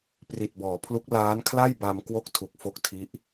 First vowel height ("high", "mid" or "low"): high